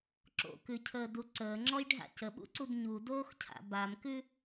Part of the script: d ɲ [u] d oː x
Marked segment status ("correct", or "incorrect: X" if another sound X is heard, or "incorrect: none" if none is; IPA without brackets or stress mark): correct